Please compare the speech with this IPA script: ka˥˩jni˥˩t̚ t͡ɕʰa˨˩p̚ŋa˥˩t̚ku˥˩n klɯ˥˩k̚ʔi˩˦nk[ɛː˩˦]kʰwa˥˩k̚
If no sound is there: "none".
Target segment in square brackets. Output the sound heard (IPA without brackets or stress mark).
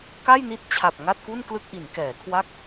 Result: ɛː˩˦